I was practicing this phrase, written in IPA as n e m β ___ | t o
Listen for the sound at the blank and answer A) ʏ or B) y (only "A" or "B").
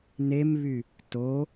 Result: B